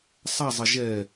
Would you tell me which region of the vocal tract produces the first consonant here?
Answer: tongue tip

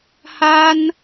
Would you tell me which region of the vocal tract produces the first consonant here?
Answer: throat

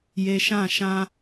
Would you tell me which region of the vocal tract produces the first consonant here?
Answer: palate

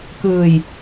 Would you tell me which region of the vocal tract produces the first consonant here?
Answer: velum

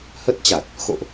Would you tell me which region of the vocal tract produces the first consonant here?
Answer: throat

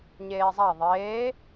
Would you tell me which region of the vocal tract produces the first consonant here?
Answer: palate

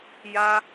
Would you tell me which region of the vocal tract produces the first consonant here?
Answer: palate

